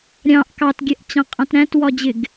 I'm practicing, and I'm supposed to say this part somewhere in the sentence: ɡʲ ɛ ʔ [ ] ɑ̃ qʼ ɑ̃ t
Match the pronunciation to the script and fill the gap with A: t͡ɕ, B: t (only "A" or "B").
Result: A